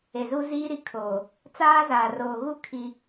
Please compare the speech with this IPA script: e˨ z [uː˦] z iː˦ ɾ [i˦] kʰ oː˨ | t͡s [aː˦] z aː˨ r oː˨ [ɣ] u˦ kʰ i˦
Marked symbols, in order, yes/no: no, yes, yes, yes

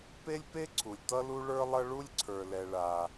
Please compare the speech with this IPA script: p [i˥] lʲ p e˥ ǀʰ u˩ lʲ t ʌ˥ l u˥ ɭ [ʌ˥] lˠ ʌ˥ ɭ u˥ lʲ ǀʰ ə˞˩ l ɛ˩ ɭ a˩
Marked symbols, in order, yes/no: no, no

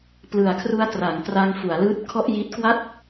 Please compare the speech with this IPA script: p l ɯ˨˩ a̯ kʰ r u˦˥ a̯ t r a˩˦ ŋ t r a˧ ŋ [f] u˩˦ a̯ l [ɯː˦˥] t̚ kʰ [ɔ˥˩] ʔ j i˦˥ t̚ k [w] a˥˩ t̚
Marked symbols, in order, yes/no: yes, yes, yes, yes

